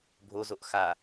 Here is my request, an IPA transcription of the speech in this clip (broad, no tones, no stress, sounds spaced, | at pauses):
bʱ o z o ʔ x a